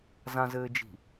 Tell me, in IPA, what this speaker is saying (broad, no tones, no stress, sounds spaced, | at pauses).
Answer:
z ã z ɘː d͡ʒ i̤